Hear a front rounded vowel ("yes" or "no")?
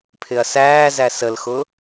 no